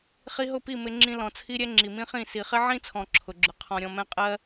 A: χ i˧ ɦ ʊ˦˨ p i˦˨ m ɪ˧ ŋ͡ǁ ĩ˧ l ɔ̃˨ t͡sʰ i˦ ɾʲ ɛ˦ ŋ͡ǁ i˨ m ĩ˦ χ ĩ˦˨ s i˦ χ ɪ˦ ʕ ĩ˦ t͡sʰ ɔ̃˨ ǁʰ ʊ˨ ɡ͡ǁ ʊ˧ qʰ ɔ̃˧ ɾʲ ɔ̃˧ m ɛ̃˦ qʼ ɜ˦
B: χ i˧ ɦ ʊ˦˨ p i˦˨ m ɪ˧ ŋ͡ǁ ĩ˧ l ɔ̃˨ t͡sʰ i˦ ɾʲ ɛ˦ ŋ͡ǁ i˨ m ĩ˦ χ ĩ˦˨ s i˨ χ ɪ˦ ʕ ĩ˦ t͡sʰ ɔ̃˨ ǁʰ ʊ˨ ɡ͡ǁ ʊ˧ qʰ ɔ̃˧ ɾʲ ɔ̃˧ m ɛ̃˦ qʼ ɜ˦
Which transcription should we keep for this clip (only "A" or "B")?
B